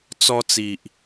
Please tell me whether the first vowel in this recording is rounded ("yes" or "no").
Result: yes